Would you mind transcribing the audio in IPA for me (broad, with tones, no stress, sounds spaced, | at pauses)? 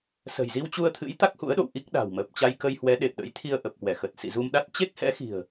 s ə̤˨˩ j z i˧ w t͡ɕ u˧ ə̯ t̪ʰ ɨ̰˧˥ j t̪ a˦˥ k̚ h ṵ˧˥ ə̯ ɗ o̰˧˨ w ʔ i˦˥ k̚ ɗ a̤˨˩ w m əː˨˩ p̚ t͡ɕ a˧ j k ə˧ j h w ɛ˨˦ ɗ e˨˩ p̚ ɗ ə̰˧˥ j t̪ʰ i˧ ə̯ ʔ ə˨˩ p̚ k w ɛ˧˩ x ə˨˩ t̚ s ḭ˧˨ z u˧ m ɗ a˦˥ t̚ t͡ɕ e˦˥ k̚ h ɛ̰˧˥ x i̤˨˩ ə̯